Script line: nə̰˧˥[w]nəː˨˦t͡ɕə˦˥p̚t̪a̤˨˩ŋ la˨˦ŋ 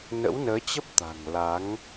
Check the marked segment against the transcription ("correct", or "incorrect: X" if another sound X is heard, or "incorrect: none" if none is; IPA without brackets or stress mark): correct